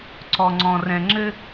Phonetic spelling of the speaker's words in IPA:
ǀ ɔ˧ ŋ͡ǀ ɔ̃˧ r ɛ̃˧ ŋ͡ǁ ɘ˥

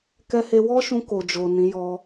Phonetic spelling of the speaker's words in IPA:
k ɛ˧ h e˧ w ɔ˦ ʃ ũ˧ k o˨ d͡ʒ o˨ n ĩ˨˦ j ɔ˧

